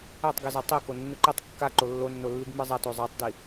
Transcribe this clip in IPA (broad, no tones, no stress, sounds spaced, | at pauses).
æ tˤ ɡ i z a tˤ i k o nː ɯ ǃ i tˤ kː a ǃ o lː o nː o lː i ɡ m ɯ zˤ a t o zˤ a tˤ d i